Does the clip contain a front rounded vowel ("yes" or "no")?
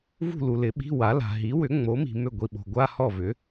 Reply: yes